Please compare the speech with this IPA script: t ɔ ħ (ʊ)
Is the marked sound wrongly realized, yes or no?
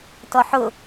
no